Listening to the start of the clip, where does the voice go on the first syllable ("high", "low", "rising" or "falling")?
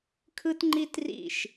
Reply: high